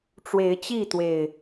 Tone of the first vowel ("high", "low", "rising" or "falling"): rising